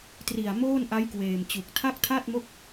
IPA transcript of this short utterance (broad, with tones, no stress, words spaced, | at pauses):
tri˨˩a̯ moː˥˩nʔa˦˥jkweː˨˩mt͡ɕu˨˩k̚ tʰa˥˩k̚tʰa˥˩t̚mo˥˩k̚